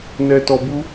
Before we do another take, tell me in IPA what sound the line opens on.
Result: n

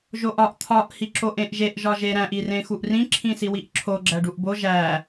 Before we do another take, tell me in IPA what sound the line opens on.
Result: ʒ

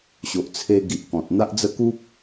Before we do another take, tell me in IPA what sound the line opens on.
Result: ɕ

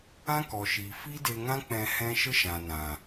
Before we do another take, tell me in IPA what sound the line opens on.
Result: ã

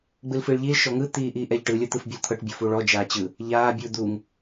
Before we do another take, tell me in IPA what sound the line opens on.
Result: ɡ͡b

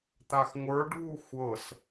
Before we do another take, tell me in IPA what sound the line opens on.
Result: t̪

